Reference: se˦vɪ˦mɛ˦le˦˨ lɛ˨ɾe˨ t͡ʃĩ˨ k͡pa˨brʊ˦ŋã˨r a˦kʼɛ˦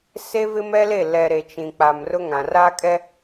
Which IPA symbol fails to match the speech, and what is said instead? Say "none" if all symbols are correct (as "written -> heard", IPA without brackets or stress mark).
b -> m